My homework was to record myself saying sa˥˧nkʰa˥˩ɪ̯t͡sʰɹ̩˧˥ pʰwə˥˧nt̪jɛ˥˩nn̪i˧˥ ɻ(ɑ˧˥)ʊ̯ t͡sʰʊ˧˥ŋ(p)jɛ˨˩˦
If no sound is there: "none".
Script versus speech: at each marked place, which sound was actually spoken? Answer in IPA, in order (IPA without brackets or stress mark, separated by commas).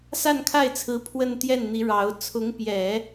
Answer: ɑ˧˥, p